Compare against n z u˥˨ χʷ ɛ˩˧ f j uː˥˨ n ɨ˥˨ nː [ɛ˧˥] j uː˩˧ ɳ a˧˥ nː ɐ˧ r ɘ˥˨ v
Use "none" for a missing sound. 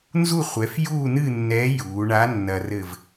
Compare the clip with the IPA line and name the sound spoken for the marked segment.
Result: ɛ˧˥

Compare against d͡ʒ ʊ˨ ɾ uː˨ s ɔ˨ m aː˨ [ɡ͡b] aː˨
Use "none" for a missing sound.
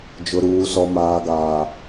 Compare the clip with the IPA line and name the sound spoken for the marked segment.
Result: ɡ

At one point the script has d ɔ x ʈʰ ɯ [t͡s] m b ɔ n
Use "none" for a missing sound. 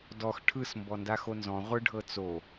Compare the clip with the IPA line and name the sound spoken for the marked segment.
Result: s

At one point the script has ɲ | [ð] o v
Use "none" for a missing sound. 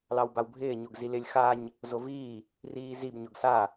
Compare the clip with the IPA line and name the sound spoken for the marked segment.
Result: z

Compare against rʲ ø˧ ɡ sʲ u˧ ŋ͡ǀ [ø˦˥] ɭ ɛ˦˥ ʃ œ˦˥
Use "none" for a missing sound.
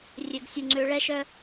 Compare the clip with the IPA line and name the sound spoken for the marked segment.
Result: ø˦˥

